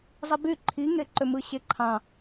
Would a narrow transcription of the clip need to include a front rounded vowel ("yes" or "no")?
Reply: yes